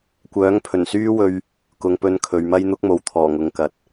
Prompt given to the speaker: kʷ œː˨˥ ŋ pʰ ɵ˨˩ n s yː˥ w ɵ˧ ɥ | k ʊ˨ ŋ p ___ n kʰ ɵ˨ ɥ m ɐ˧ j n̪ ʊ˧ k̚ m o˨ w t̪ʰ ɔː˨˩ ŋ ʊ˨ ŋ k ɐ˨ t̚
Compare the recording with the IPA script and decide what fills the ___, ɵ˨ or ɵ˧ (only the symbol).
ɵ˧